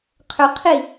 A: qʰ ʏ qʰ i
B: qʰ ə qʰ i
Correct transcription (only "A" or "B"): A